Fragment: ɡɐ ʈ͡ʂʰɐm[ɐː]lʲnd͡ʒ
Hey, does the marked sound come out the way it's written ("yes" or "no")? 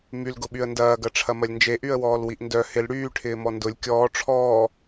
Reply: no